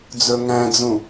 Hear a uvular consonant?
no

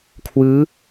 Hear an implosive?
no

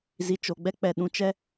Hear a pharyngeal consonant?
no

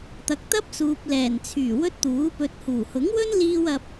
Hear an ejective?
no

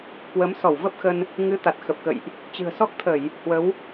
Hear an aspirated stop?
yes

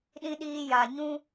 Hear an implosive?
yes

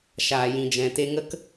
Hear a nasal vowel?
yes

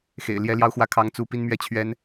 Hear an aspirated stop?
yes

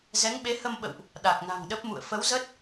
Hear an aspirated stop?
no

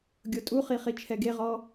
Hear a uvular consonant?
yes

